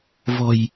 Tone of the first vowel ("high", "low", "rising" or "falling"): low